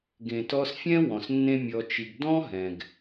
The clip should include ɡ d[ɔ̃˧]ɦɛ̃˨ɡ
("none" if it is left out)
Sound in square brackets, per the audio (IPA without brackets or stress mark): ɔ̃˦